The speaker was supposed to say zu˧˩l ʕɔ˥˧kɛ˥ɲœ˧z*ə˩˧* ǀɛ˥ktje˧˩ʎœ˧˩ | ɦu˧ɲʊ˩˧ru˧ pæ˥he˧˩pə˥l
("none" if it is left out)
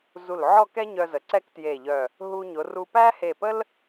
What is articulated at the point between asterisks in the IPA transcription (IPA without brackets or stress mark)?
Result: ə˩˧